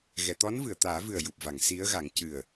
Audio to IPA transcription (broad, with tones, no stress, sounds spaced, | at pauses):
ɣ ɛ˨˩˨ t̪ ɔ˧˥ n v ɨ˨˩˨ ə̯ t̪ aː˨˩˦ v ɨ˨˩ ə̯ j u˨˩ p̚ v a˨˩˨ ŋ s i˧˥ ə̯ ɣ a˨˩˦ ŋ c ɨ˨˩ ə̯